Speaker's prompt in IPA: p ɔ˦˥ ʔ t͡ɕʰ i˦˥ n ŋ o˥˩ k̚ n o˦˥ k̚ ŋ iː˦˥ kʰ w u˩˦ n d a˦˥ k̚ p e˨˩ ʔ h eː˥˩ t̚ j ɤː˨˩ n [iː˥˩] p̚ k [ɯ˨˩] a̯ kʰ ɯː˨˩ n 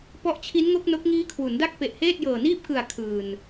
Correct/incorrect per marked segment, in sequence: correct, correct

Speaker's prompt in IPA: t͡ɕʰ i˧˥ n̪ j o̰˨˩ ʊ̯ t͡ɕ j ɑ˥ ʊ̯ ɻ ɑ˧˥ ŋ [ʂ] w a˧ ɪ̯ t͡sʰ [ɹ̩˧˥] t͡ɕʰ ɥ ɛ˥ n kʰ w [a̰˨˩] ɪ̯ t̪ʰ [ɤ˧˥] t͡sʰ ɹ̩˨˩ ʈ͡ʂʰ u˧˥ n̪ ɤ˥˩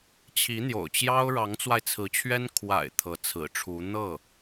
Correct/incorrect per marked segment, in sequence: incorrect, correct, correct, correct

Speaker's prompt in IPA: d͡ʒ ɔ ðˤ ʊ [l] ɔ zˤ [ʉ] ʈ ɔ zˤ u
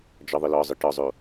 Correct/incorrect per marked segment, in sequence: correct, incorrect

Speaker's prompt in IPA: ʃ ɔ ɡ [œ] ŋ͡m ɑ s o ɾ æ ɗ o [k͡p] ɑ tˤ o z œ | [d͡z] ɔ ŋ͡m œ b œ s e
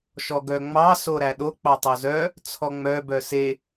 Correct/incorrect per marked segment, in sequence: correct, correct, incorrect

